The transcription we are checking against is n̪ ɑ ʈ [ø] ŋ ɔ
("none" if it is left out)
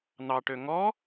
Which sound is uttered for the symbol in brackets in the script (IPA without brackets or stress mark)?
ø